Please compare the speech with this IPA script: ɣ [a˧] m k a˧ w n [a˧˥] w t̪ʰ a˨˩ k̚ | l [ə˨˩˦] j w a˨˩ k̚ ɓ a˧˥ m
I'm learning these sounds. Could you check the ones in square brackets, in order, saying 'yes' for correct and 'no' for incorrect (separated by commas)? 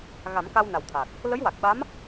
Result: no, no, no